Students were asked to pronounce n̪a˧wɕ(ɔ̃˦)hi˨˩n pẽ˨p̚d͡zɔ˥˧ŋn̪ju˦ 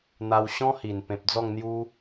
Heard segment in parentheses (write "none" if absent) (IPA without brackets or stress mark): ɔ̃˦